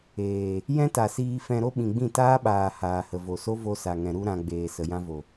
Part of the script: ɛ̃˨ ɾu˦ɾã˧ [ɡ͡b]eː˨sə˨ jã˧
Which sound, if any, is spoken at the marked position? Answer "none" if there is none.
ɡ͡b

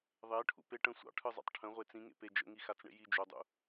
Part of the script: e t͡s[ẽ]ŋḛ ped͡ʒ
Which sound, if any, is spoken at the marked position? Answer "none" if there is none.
ĩ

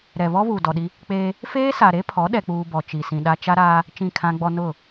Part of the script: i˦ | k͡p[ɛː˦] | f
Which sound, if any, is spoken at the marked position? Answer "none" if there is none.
eː˦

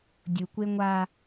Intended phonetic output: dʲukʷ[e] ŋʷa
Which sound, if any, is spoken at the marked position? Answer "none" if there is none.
e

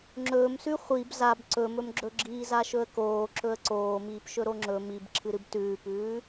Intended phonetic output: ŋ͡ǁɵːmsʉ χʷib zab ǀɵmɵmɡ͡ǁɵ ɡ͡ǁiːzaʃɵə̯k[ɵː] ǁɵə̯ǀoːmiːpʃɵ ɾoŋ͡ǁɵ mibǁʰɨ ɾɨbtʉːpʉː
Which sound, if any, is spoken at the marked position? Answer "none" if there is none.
oː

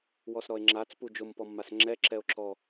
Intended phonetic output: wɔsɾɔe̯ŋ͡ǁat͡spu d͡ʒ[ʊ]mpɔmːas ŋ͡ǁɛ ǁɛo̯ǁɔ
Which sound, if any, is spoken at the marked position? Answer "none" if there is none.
ʊ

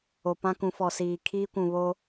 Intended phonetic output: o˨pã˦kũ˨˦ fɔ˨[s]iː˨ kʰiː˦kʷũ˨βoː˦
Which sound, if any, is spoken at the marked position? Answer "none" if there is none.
s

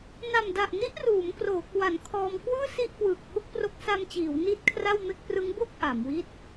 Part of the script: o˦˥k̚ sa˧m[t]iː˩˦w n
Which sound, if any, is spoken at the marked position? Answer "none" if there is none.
t͡ɕ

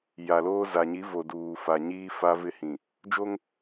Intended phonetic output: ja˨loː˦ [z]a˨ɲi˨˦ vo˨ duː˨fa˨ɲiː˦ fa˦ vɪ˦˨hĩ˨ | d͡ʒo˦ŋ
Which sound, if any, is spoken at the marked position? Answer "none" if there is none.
z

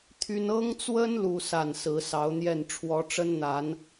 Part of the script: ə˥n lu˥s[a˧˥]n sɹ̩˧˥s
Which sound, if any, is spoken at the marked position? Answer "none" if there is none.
a˥˩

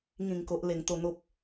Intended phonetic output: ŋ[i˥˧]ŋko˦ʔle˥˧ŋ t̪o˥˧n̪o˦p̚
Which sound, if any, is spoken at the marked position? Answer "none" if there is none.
ĩ˥˧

